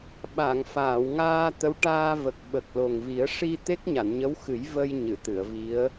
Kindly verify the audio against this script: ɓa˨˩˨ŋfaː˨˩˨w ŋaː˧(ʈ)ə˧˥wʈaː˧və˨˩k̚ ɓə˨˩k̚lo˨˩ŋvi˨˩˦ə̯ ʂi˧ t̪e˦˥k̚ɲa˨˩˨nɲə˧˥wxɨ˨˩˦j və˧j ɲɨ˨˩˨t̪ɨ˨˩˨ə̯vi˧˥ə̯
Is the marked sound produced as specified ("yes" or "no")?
no